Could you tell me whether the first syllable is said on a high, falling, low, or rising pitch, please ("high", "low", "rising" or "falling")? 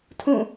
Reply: falling